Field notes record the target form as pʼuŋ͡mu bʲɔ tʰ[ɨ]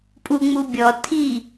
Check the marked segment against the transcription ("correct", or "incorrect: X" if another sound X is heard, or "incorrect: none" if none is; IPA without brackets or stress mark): incorrect: i